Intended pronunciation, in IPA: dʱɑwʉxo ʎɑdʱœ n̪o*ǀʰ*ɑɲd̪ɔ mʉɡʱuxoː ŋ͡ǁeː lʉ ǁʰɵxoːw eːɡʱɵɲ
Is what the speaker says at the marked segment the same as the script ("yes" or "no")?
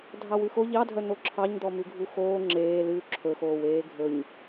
no